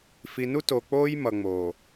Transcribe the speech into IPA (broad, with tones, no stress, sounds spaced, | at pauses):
f i˨ n u˦ t o˨ k͡p oː˦ j m ʌ˨ ŋ͡m oː˨